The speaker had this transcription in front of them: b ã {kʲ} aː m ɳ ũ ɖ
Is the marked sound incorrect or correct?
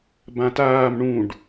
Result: incorrect